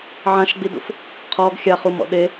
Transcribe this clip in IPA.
ʕãʃɡ͡bidṵf | qʰɔɡ xʲaχumɔ̰ ɗe

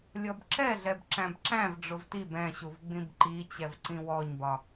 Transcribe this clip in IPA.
lʲɔbǁɛɮɛb ǁæ̃bǁæ̃v ɖ͡ʐʊvtib ɛ̃ɕuv ɡ͡bĩbǃit͡ɕɛvǀĩ wɔɲbɒ

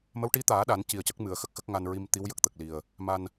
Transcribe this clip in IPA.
mə˧˥wʈi˧˥t̪aː˨˩˦ ɗa˨˩˦n ci˨˩ə̯cə˦˥k̚ mɨ˨˩˨ə̯xə˦˥k̚xə˦˥k̚ ŋa˧nɹi˧m t̪i˧˥wjə˨˩k̚t̪ə˨˩k̚li˨˩ə̯ | ma˧n

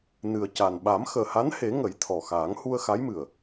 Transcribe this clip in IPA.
nɨ˨˩ə̯ca˨˩n ɓa˨˩˦mxəː˨˩ha˧˥nhe˨˩˦ ŋə˨˩˦jt̪ʰɔ˨˩xaː˨˩˦ŋ hu˧ə̯xa˧˥jmɨ˨˩ə̯

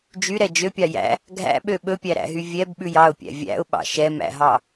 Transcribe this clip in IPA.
d͡ʒyɾɛ d͡ʒøpʲɑ jæ̰ | ɡʱæ̰ɓø ɓɵpʲæɾæ̰ɦy vʲɛbɓʉj ɑʊ̯pʲæ̰ vʲæ̰ʊ̯ɓɑ̰ ʃɛmæ̰ɦɑ

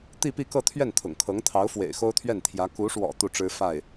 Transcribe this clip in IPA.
t̪i˥˧pi˥˧kɤ˥˧t̪ʰɥɛ˥˩n t̪ʰʊ̰˨˩ŋkʰɤ˧˥ŋ t̪ʰɑ˧˥ʊ̯fwḛ˨˩ɪ̯ xo˥ʊ̯t̪ʰɥɛ˥˩nt̪ʰjä˧˥ ku˧˥ʂwɔ̰˨˩ t̪u˥˩ʈ͡ʂɻ̩˥ fa˥˩ɪ̯

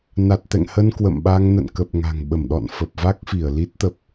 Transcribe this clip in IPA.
na˨˩t̚t̪ɛ̰˧˨ŋhə˧n kwə̰˧˨mɓa˧ŋ nə̰˧˨nkə˨˩p̚ ŋa̤˨˩ŋɓə˧˩mɗɔ̰˧˨n fə˨˩p̚va˦˥k̚fi˧˩ə̯ li˦˥t̚t̪ə˦˥p̚

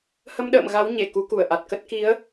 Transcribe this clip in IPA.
hə˧mɗə̰ː˧˨m ɣa˨˦w ɲe˧˩ ku˨˦ku˧˩ə̯ʔa˨˩t̚kə˦˥t̚ ki˨˦ə̯

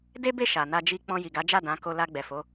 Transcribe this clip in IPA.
de˦be˦˨ ʃa˨na˧d͡ʒi˧ k͡pɔ̃˧ji˨ɡa˨˦d͡ʒa˦˨ dã˨˦ ko˧ la˧ɡ͡bɛ˨fo˨˦

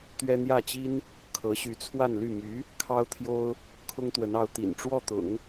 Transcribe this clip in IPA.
t̪ɥɛ˥ n̪jä˥˩t͡ɕi˥n | kʰɤ˧˥ɕy˧˥t͡sʰwa˥˧nly˥˩ my˧˥ | kʰɑ˥ʊ̯t̪ʰjo˥ʊ̯ | kʰʊ˥ŋt̪wə˧˥nɑ˧˥ʊ̯ t̪ḭ˨˩nʈ͡ʂwɔ˥˩t̪ʊ̰˨˩˦ŋ

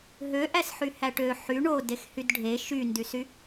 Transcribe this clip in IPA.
ɦøʔæsħyhæʈ ø ħy ɳodexhyd ɖʱe ʃyndysy

